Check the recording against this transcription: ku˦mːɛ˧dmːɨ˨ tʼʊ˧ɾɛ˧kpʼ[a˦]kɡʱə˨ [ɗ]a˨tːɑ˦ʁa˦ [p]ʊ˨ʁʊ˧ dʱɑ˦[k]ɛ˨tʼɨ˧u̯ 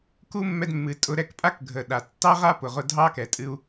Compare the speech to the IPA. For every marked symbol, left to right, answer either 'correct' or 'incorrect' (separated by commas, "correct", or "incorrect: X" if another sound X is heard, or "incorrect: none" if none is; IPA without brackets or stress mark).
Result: correct, correct, correct, correct